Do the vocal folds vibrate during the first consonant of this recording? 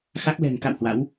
no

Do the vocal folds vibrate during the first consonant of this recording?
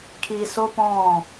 no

